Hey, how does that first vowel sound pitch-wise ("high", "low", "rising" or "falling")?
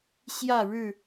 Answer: falling